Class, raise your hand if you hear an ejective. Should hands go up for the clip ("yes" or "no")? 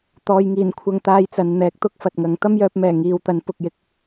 no